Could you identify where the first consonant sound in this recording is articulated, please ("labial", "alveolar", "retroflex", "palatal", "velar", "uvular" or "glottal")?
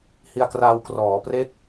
glottal